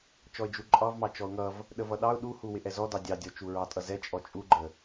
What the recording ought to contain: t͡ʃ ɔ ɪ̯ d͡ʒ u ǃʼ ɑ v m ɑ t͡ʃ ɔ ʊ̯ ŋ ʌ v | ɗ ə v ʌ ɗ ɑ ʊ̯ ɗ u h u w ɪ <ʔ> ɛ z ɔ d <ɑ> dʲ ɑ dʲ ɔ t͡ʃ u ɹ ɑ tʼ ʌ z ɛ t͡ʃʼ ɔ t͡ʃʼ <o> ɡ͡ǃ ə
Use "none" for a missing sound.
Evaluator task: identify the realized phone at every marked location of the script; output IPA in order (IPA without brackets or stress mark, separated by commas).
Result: ʔ, ɑ, u